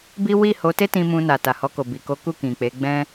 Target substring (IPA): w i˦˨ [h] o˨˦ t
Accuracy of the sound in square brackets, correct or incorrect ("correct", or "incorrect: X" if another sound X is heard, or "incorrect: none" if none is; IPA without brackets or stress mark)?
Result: correct